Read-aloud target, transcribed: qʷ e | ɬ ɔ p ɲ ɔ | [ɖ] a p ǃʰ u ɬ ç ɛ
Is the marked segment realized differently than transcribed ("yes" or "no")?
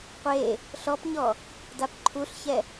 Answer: yes